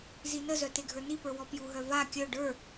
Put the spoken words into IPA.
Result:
zinəzœ teɡʱə˞nipə˞ wɔpjuɦœ va kʲœ ɖə˞

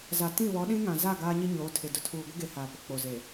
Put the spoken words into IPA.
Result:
za˨ tĩ˦˨ βɔ˨˦ɗĩ˦ ŋã˨za˦˨ ɡaː˦ɲi˦ ɲoː˨˦tʰɪ˨dʊ˨ tʰuː˨ɡʷɪ˦ɡe˨ haː˨pʊ˨k͡po˨ze˨

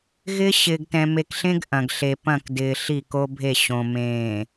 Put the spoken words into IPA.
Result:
ɣɪ˦ ɕɪː˨ɡtɛ̃˨me˨kɬẽ˦ɡ ʔɐ̃˨ɡ ɬe˨pɐ̃˦˨k dɪː˨ ɬi˦˨ko˦bʱe˦˨ɕõ˨ mẽː˨

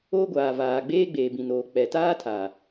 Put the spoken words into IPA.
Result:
o˦ɡʷaː˨vaː˨ ɡ͡beː˦ɡ͡beː˨bĩ˨noː˨ k͡pɛ˨taː˦tʰaː˨

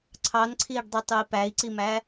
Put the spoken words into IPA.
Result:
ǀʰɑnǀʰiːɖdˤetˤui̯ pæi̯ǀimæ

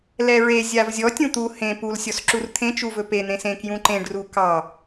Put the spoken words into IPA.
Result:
lɛɹe zʲavzʲɔ tʲũt̪u hẽ pul sʲɔsǁurt̪ʰẽ t͡ʃuvɵpe n̪ẽsẽ kjũǃẽɖ rukɑ

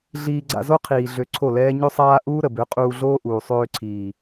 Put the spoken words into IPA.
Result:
ɮiː˧ɡ͡ǀa̰˧zo˦ qʰiː˨ ɮø˧ǀʰo˦˨lɛː˦ ɲø˦sˤaː˦ ʔuː˦ɾə˨ bø˨˦qʼuː˧ɮoː˦ʔuː˨ sˤøː˧ǀʰiː˨

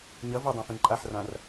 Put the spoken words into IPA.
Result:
ɲɐ vɨdˤãfẽ ǃʼaħrãr

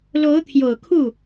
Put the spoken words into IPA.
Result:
lo˧˥ʊ̯ t̪ʰjo˨˩ʊ̯ kʰu˥˩

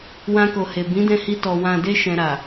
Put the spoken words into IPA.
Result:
wã˧ko˨he˨ bĩ˨˦dɛ̃˧hi˧ tɔ˨ wã˨de˧ ʃɛ̃˧ɾa˨

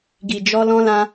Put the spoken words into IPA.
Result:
ɡi˨d͡ʒɔ˧ lɔ̃˧lã˧

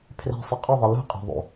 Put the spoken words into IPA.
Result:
pʰre̤ sˤʌqʼɯðˤi lṳ qʼe̤ ðˤṵ

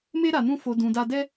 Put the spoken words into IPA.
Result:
me˦ ɾa˧nũ˦fo˧ dũ˧da˦ dɛ˦

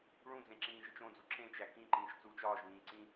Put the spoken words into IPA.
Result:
ɭũd͡zẽǁĩːʒit͡ʃ õd͡zu ǁẽt͡ʃæ kĩǃĩːʃt͡suːt͡ʃ ɒːʒβĩː ǀĩ

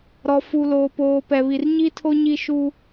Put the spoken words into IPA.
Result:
ɾɔ˨fu˨loː˨poː˨ pɛ˨βi˨r ɲi˦tʰo˦ ɲi˦ʃuː˦

